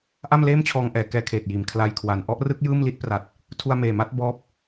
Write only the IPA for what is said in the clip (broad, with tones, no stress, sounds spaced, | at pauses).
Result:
ʔ a˥˩ m l eː˥˩ m t͡ɕʰ ɔː˧ ŋ ʔ ɛː˩˦ k ɛː˧ kʰ eː˨˩ t̚ j iː˨˩ m kʰ l a˧ j kʰ w a˨˩ n ʔ ɔ˥˩ ʔ r ɯ˦˥ k̚ j ɯː˥˩ m l i˥˩ t̚ p r a˨˩ t̚ | tʰ u˧ a̯ m eː˨˩ m a˦˥ t̚ b ɔː˦˥ p̚